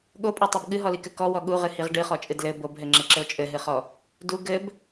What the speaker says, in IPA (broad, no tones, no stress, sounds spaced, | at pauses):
ɠ o pʼ o tˤ o b ɠ ɨ ɦ ɔ l i k ɘ k ɔ w ɔ ɠ u ʁ ɨ h i ʁ ɖ ɨ χ ɔ t͡ʃʼ ɨ d l ɘ b o b ɦ ɘ ŋ͡ǁ ɘ ǁ ɘ o̯ t͡ʃʼ ɘ ɦ ɨ χ ɔ | d u ɡ ɘ b